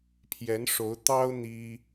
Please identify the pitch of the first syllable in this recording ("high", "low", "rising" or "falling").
rising